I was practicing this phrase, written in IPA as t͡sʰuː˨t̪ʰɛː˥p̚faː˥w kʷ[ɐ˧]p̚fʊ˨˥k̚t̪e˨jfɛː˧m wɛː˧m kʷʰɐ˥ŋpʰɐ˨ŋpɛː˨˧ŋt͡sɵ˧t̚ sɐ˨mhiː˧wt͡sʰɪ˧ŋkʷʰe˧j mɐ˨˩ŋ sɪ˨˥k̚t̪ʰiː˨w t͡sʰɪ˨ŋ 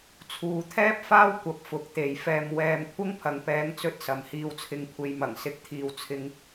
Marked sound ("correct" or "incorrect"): correct